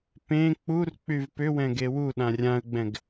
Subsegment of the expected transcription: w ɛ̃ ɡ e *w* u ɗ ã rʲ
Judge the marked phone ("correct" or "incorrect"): correct